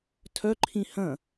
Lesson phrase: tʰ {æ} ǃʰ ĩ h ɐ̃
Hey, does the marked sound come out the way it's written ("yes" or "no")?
no